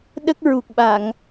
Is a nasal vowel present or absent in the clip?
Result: absent